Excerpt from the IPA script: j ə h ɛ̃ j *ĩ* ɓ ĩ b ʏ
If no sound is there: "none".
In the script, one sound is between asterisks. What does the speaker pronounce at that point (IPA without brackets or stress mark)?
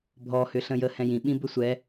ĩ